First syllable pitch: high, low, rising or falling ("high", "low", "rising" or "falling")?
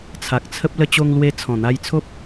low